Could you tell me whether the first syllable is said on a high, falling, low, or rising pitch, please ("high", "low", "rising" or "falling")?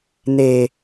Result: high